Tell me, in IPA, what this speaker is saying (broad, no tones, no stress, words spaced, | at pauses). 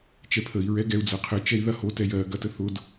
t͡ʃɛpʰəi̯ ɹɛɡɛu̯ d͡zɐqʰə t͡ʃɛi̯ðɐho tɛjɜ ɡɐtəθʊd